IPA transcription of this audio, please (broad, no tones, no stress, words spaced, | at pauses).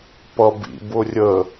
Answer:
pʌbḭ bʊrʲə